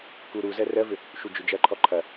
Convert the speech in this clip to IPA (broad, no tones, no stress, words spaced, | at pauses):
kuɾuzɜ rɜvʏ | ʃud͡ʒʏd͡ʒɐǃʰɔ ǃʰɐ